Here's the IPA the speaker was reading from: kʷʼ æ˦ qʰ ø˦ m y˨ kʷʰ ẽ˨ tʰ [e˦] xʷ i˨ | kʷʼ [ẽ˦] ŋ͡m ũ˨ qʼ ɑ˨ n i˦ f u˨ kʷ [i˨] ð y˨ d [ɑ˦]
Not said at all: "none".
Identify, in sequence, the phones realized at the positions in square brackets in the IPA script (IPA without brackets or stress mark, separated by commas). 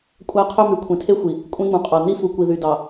e˦, ẽ˦, i˨, ɑ˨